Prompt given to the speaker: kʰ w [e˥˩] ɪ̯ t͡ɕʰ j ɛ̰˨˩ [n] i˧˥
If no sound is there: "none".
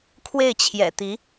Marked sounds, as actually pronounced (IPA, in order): e˥˩, t̪

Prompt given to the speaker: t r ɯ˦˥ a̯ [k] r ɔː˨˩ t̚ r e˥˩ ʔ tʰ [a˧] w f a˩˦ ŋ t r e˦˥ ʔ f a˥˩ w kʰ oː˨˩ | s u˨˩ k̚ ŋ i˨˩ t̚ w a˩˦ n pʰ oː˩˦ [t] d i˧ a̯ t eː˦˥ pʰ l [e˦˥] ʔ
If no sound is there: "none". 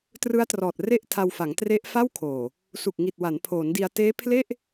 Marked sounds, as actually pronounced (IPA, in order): t, a˧, n, e˥˩

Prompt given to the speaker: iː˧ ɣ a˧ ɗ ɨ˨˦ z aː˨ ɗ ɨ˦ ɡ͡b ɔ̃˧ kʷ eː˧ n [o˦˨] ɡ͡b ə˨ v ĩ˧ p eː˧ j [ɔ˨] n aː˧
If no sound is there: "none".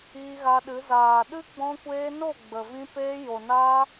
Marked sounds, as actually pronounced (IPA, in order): o˦˨, o˨

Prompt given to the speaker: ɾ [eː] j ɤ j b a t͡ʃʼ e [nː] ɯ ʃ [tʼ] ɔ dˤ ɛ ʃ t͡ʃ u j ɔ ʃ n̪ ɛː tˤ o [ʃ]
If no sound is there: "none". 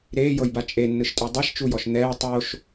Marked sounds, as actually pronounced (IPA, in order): eː, nː, tʼ, ʃ

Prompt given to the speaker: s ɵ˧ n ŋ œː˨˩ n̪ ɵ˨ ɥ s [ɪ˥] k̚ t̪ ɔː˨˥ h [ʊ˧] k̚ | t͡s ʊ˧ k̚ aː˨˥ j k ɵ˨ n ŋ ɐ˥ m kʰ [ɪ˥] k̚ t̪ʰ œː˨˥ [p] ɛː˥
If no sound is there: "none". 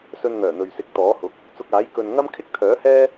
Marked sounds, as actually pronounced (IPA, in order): ɪ˨˥, ʊ˨˥, ɪ˥, h

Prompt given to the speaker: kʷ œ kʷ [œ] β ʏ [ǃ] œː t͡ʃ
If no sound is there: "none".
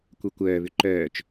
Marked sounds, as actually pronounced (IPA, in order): œː, ǃ

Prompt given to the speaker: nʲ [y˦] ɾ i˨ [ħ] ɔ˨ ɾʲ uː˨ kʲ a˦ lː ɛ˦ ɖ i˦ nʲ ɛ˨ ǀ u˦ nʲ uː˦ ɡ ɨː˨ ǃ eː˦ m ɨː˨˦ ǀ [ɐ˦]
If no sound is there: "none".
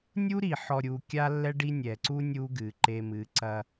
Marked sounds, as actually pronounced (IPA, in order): u˦, ħ, ɐ˦

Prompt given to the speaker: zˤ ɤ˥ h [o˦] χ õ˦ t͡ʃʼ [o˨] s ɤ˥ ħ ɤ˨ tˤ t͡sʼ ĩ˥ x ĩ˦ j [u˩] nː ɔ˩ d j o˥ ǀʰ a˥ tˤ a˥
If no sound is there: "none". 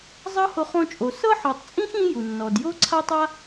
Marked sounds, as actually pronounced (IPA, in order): o˦, o˨, u˩

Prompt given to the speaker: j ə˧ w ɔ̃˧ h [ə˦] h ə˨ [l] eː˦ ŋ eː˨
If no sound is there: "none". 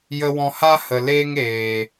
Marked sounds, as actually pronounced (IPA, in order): a˦, l

